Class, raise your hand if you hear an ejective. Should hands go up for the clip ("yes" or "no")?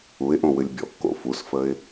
no